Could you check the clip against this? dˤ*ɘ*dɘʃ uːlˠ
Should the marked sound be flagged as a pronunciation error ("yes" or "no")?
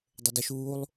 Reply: no